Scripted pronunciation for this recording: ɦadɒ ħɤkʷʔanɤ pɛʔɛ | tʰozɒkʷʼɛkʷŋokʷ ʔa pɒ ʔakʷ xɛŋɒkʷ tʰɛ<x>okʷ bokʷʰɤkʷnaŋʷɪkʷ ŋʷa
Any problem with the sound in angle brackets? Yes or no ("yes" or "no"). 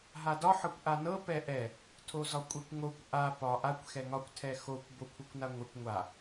no